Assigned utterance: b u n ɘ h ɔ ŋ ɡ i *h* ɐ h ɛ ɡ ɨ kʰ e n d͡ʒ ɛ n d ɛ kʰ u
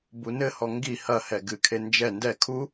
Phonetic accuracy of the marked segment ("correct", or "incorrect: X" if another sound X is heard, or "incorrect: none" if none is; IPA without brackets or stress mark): correct